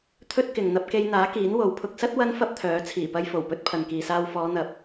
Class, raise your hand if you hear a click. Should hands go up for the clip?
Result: no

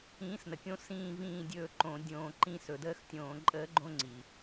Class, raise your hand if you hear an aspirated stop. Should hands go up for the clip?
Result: no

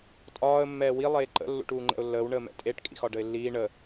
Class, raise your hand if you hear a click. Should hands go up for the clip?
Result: yes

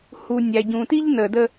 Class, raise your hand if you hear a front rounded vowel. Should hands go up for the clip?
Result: no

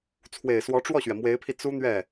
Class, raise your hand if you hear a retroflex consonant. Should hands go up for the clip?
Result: yes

